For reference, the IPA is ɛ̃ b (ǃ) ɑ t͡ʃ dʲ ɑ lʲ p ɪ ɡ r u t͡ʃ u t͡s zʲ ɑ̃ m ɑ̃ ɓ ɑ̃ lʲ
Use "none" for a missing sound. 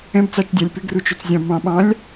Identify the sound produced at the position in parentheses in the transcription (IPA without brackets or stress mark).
t͡s